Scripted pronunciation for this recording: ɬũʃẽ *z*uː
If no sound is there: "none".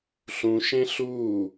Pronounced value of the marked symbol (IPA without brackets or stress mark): ɬ